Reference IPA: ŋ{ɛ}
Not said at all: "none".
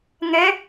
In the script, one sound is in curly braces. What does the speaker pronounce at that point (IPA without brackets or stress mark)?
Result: ɛ